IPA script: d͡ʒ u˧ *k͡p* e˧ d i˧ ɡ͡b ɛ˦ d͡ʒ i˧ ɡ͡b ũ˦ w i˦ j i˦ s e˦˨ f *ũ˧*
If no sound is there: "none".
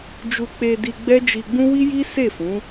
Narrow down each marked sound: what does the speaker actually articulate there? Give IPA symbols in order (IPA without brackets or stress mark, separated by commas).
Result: k͡p, ũ˨˦